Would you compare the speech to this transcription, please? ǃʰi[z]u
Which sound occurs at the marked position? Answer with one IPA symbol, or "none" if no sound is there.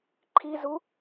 z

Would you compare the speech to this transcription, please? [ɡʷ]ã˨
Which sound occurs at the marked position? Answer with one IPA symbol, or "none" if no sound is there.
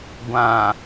ɡʷ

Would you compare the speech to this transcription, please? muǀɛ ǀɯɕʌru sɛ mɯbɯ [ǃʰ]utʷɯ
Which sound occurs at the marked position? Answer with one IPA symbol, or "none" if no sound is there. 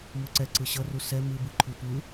ǃʰ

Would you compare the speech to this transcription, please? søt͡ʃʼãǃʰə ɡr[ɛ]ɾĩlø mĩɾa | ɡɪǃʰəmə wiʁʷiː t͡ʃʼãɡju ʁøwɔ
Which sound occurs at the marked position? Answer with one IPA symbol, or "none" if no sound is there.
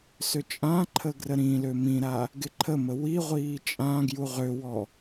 ə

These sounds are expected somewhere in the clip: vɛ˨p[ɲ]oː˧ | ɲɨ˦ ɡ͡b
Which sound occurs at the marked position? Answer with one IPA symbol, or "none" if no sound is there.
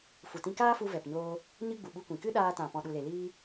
ɲ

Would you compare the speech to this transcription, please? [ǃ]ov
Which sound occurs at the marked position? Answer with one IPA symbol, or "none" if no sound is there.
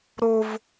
ɾ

